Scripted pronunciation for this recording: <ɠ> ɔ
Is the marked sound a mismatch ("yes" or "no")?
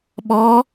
yes